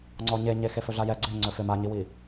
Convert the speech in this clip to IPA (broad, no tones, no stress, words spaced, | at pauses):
ŋ͡ǀɔɲeɲe xefɵɮajɛ ɡ͡ǀɪ ŋ͡ǀɵfɪ maɲiwi